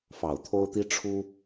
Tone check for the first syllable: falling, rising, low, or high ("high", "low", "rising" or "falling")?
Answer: low